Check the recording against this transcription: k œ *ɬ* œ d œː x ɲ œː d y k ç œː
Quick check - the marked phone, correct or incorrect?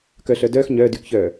correct